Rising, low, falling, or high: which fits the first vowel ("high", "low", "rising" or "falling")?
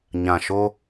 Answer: low